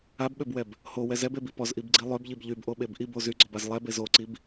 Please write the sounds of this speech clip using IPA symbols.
a b ɓ ø b w ɛ b | h o w ɛ z ɛ b e b i p ɔ z ʔ i b ɡ͡ǀ i lˠ ø b ʎ i b ʎ y b ʔ o ɓ e b ʔ i b o z y ɡ͡ǀ ɔ b a z lˠ ɛ b e z o ǀ i b

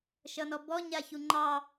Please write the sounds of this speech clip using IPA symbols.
ʃ ʌ n ɔ b ɔ ɲ a ç u ŋ͡ǃ ɑ

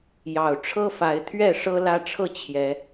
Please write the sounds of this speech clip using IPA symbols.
j ɑ˨˩ ʊ̯ ʈ͡ʂʰ ɤ˦ f a˨˦ ɪ̯ t̪ʰ ɥ ɛ˥˨ ʂ ɤ˦ l ä˦ ʈ͡ʂʰ ɤ˥˨ t͡ɕʰ j ɛ˨˦

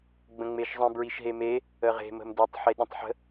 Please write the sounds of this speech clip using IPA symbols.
ɡ͡b ə̃ ŋ͡m e ʃ zˤ ə̃ b ɹ i ʃ ɦ e m e | ə ʁ e̤ m ə̤ m d e tˤ ħ e ɗ ə̃ tˤ ħ ə̤

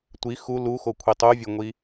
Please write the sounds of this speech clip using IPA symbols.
tʷ i x u l u x o kʷʰ i tˤ u vʲ o ŋʷ i

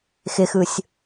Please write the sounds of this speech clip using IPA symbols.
x ɪ x ɯ sʲ

